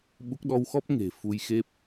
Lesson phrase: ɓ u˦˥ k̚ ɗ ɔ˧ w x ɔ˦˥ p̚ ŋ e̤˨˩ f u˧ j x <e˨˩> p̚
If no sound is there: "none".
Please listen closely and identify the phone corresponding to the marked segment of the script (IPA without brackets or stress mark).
e˦˥